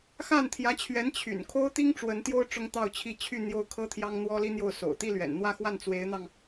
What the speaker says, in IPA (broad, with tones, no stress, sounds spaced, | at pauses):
x a˥˩ n t̪ʰ j ä˧˥ t͡ɕʰ ɥ ɛ˧˥ n t͡ɕʰ y̰˨˩ n kʰ o˥ ʊ̯ t̪ i˥ ŋ ʈ͡ʂ w ə˧˥ n t̪ j o˥ ʊ̯ ʈ͡ʂ ʊ˥ ŋ t̪ ɑ˥˧ ʊ̯ t͡ɕʰ i˥˧ t͡ɕʰ y˥˧ n̪ j o˥˩ ʊ̯ kʰ ɤ˥ t̪ʰ j ɑ˥ ŋ n̪ w ɔ˥ l i˥ n̪ j o˥˩ ʊ̯ s o̰˨˩ ʊ̯ t̪ i˥˩ l ɥ ɛ̰˨˩ n n̪ w ä˥˧ x w a˥˩ n t͡s w e˧˥ ɪ̯ n̪ ɑ˧ ŋ